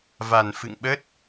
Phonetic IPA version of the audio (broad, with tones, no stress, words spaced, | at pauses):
va˨˩nfɨ̰˧˨ŋɓə˦˥t̚